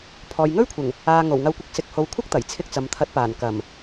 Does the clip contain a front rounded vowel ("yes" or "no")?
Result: no